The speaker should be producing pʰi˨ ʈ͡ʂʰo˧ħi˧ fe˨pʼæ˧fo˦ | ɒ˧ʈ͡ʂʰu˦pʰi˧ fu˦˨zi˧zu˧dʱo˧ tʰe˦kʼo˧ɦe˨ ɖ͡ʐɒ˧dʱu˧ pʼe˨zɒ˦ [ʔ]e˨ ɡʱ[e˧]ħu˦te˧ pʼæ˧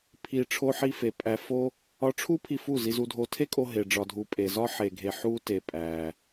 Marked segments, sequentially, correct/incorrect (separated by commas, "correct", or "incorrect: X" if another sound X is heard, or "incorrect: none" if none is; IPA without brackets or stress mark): incorrect: ħ, correct